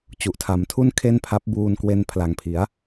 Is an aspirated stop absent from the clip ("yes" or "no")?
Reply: no